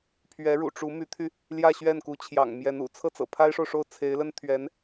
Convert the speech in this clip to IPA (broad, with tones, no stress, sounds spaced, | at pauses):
pʰ ɥ ɛ˧˥ ɻ ṵ˨˩ ʈ͡ʂ u˧˥ m y˧˥ t̪ʰ y˧ | l j ä˥˧ ɕ ɥ ɛ˥˩ n k u˧˥ t͡ɕʰ j ɑ̰˨˩ ŋ m j ɛ˧˥ n ṵ˨˩ t͡sʰ ɤ˥˩ t͡s ɤ̰˨˩ pʰ a˥ ɪ̯ ʂ o˨ ʊ̯ ʂ o˥˩ ʊ̯ t͡sʰ e˧˥ ɪ̯ l ə˥ n t̪ʰ ɥ ɛ˧˥ n